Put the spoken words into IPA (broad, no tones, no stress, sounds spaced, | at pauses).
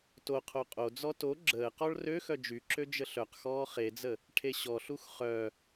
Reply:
t o qʰ o qʼ o d͡z ɔ t o ɡ͡ǁ əː q ɔ ɭ r ø x œ d͡ʒ y ǁ ø d͡ʒ ə ɬ œ q x ɔː χ e d͡z ə | ʈʰ e ɕ ɔ ɬ u x χ œ